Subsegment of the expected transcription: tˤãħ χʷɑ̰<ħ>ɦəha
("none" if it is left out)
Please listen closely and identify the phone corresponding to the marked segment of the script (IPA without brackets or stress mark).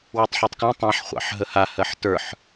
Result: ħ